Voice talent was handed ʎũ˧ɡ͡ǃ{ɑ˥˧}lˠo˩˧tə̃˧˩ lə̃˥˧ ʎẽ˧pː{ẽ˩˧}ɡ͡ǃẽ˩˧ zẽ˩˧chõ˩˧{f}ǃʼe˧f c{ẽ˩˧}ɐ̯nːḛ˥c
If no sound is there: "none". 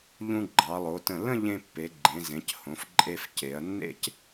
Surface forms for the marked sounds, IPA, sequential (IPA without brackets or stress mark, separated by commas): ɑ˩˧, e˩˧, f, e˩˧